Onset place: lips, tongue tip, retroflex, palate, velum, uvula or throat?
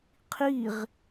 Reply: uvula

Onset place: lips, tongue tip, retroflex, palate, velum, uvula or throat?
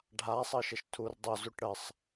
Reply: retroflex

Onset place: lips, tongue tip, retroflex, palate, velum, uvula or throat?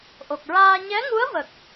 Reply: throat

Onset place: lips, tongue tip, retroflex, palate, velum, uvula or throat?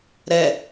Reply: tongue tip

